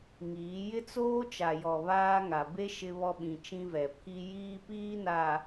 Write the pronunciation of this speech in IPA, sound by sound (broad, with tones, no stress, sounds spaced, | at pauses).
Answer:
ŋ iː˨˦ j ɪ˦ t͡s oː˦ t͡ʃ a˨ j ɔ˨ β aː˦ ŋ a˨ b e˦ ʃ ɪ˦ β ɔ˦ ɓ ĩ˨ t͡ʃ ĩ˦ v ɛ˨ pʰ i˦ j iː˦ p iː˦ n a˨